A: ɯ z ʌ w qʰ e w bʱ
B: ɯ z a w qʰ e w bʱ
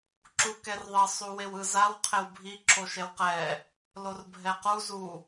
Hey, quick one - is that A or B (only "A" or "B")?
B